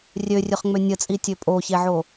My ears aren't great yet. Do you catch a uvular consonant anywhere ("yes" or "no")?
yes